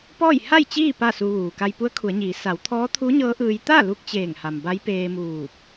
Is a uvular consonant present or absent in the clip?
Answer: absent